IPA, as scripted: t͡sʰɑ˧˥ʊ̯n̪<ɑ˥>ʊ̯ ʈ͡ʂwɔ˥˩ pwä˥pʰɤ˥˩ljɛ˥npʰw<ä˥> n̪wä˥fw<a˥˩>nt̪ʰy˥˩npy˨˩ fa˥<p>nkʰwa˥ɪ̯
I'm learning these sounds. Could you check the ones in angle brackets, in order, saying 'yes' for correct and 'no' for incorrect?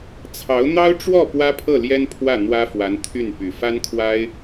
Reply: yes, no, no, no

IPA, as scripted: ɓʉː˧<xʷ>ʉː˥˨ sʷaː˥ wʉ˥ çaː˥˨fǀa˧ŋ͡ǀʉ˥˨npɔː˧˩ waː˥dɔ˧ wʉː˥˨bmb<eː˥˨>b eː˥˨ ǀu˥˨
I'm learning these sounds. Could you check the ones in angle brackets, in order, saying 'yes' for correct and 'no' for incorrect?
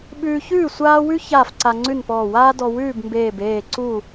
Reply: no, no

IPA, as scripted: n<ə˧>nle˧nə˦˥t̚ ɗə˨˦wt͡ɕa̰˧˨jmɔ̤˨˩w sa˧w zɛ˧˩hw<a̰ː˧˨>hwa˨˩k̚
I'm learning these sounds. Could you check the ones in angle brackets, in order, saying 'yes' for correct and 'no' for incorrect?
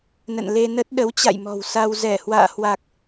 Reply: no, yes

